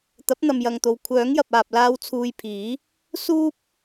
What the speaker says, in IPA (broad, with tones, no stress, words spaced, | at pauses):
t̪ɐ˨˥p̚n̪ɐ˨mjɐ˨ŋt̪o˨w kʷʰœː˨˥ŋjɐ˨p̚aː˨p̚laː˧w t͡sʰuː˧jpʰiː˨˥ | suː˥p̚